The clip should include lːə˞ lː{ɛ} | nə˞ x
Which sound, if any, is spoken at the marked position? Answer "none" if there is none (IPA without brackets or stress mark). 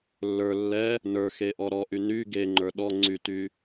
ɛ